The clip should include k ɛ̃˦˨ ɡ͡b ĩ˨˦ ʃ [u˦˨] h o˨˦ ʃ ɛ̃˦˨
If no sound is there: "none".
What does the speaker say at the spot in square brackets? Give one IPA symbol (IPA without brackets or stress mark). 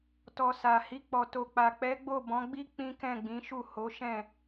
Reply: u˦˨